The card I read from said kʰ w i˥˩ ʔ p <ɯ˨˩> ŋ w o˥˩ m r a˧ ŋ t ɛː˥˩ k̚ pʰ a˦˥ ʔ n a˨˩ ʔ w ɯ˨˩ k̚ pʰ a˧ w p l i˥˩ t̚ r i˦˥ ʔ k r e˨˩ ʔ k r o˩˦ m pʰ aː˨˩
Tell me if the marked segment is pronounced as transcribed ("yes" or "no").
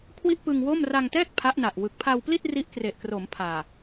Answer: no